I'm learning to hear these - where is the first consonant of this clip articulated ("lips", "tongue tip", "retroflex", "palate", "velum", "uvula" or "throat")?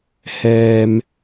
throat